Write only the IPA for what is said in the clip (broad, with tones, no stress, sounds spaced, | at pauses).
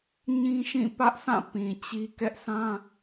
ɲ ĩ˦ ʃ ĩ˦˨ p ä˦ ʔ s ã˦˨ p ĩ˨ t͡ɕ i˦ k ɛ˦ ʔ s ã˦